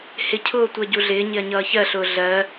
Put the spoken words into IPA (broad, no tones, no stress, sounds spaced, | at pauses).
h ɪ cʰ ʊː tʷ ɜ ɟ u ɮ ɪː ɲ ɪ ɐ̯ ɲ ʌː ç ɜ ɬ ʊː ɮ ɜ